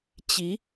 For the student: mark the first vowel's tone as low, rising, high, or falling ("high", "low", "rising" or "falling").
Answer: rising